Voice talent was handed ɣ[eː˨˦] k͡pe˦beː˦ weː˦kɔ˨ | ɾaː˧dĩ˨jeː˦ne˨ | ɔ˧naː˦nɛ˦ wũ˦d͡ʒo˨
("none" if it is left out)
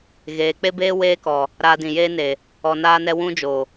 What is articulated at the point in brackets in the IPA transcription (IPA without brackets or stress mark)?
eː˨˦